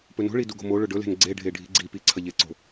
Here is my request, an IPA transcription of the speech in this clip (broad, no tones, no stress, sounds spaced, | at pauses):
p ɵ n o̤ ɭ i d u ɡ o̤ m o ɭ ɵ ɖ ɵ l e̤ n ɡ͡ǀ e ɖʱ e ɖʱ i̤ ɡ͡ǀ i p i ǀʰ ɐ ʎ e ǀ o̤